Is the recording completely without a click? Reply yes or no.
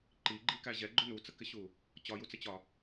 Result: no